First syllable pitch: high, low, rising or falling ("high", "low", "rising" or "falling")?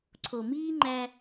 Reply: low